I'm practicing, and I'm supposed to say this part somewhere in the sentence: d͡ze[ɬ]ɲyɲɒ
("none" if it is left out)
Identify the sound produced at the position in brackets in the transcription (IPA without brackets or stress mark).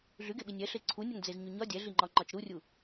z